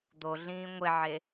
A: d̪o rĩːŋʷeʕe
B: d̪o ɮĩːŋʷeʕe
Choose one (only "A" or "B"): B